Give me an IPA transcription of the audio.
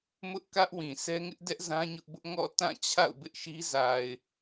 m ʊ˦ ʔ k ä˦ ʔ w ĩ˨ sʰ ɛ˦ ŋ ɪ˦ ʔ d ɛ˦ ʔ z ã˦ ɲ ʊ˦ ʔ b ʊ˦ ʔ ŋ ɔ̰˦˨ t ã˦˨ t͡ɕʰ a̰˦˨ ʊ̯ b ɪ˦ ʔ ʃ i˦ z a˨ ɪ̯

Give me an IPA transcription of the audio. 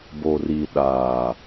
b o˨ r i˨ ɗ aː˨

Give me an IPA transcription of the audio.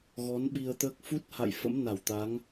ɣ ɔ˨˦ n ɓ i˧ ə̯ t̪ əː˦˥ k̚ f u˦˥ t̚ h a̰˧˨ j f ə̰˧˥ m n a˧˩ w t̪ a˨˦ ŋ

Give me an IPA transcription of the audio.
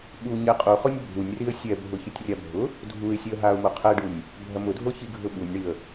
ɓ u ɲ ɛ qʼ u χ o nʲ bʱ u nʲ r i ə̯ sʲ ɛ bʱ ʊ ç ʊ tʲ rʲ a bʱ ʊ | dʱ u ɪ̯ sʲ ɛ ə̯ ɦ a ʊ̯ m o qʰ ɛ ɖ u nʲ | bʱ ɐ m ʊ dʱ o ç i ɡʱ ʊ ɓ u nʲ ɳ i ə̯

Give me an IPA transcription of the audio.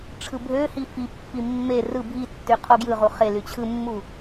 ʈ͡ʂʰ ɯ bʱ ø h i f i pː i mː e r ɯ bʱ i tː y qʰ o ɡ j ɯ ʁ u χ e l y t͡ɕʰ ɯ mː u

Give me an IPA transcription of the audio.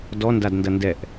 d ɔ n d a d n d ɐ n d ɛ ʔ

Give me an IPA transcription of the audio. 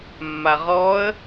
mː a ʁ ɔ ə̯

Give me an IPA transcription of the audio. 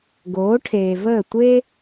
ɡ oː˨˦ ʈʰ eː˨ v əː˦˨ tʷ e˦

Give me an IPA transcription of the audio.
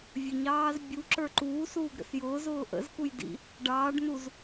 vʲ ə ɲ ɑː z bʲ u ǁ ə˞ ǃ uː s uː ɡ ɾ ə̰ s j ʊː z ʊː ʔ ə̰ z k u j d ḭ | ɖ ɑː ɖ n u z

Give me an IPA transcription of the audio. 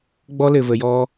ɡ͡b ɔ˦ l ɘ˨ v ə˨ j ɔ˦

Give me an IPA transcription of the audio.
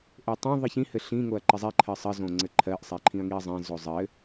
ʔ e tˤ õ ðˤ i ç ĩ h ɘ ɬ ĩ ŋ o ɐ̯ ǃ ɪ zˤ i ǃʰ ɜ sˤ ɘ z õ ŋ͡ǀ ɘ ǃʰ ɜ ʔ sˤ e ǃʰ ĩ ɐ̯ ŋ i ɐ̯ zˤ ẽ z o zˤ ɘ

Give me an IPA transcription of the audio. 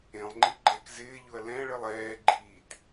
ẽ lˠ ŋ͡ǃ i ɡ͡ǃ ɛ k z ɪː ʎ ʊ ɐ̯ l ɛ̃ ɭ ɪ lˠ ɛː ɡ͡ǃ iː t

